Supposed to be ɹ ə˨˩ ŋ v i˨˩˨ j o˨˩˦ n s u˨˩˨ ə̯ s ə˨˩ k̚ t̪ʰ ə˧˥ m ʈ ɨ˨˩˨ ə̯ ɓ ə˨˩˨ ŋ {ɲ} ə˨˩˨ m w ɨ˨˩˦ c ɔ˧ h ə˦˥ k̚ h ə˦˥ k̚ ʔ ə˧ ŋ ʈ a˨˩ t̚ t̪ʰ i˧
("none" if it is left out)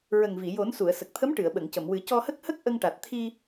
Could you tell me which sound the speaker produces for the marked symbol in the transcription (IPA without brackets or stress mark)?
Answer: c